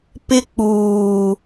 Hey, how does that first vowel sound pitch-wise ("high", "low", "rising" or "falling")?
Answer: high